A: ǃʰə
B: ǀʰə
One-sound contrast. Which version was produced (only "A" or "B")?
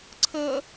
B